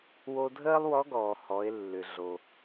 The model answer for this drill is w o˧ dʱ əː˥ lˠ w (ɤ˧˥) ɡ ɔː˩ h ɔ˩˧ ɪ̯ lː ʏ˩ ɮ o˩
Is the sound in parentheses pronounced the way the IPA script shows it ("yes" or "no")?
no